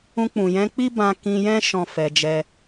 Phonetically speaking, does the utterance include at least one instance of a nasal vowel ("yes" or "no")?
yes